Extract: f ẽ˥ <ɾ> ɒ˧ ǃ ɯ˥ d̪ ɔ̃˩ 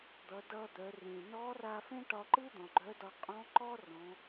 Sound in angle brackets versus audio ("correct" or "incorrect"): incorrect